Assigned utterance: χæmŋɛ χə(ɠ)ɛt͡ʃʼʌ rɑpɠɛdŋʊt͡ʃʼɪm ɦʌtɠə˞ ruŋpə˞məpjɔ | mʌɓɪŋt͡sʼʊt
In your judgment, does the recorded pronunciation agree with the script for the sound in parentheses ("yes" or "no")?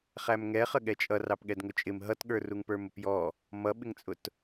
yes